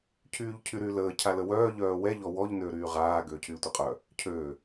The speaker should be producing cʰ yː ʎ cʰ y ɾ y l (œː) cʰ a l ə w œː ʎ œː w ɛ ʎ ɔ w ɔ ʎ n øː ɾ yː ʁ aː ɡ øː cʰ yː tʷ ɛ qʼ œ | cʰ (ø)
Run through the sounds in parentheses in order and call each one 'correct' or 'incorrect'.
incorrect, correct

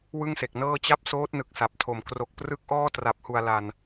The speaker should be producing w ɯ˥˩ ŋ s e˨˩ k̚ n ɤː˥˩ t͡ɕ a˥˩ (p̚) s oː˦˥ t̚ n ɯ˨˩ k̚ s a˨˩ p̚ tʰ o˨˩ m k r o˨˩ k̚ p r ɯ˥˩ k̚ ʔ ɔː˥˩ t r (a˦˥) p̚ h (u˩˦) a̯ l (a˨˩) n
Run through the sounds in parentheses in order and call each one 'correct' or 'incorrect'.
correct, incorrect, incorrect, correct

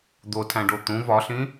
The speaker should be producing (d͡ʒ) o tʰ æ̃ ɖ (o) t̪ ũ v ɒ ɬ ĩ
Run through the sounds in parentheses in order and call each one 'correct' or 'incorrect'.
incorrect, correct

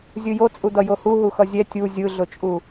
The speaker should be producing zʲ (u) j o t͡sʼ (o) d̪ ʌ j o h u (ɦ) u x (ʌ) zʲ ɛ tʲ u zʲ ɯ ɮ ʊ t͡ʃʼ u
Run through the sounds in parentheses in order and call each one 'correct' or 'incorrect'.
incorrect, incorrect, correct, correct

